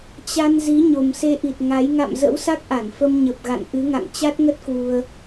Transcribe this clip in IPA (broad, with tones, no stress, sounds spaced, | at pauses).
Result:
t͡ɕ a˧ n z i˨˦ ɲ o˨˩ m s e˧ ʔ i˨˩ t̚ ŋ a˨˦ j ŋ a̰˧˨ m z ə̰˧˥ w s a˦˥ k̚ ʔ a˧˩ n f ə˧ m ɲ ə˨˩ p̚ ɣ a̰˧˨ n ʔ ɨ˨˦ ŋ a̰˧˨ ŋ t͡ɕ a˦˥ t̚ ŋ ə˦˥ t̚ k w u˧ ə̯